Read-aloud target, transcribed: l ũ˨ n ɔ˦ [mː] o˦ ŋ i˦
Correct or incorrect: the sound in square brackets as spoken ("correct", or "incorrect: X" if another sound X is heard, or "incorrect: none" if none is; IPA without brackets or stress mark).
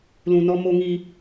incorrect: m